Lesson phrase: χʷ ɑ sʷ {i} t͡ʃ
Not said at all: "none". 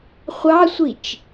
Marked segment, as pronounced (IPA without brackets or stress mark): i